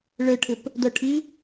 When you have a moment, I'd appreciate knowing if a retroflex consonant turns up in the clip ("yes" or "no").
yes